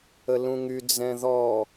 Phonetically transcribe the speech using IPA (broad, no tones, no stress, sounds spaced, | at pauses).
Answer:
ə l ũ ŋ y d͡z ɛ̃ ð ɔ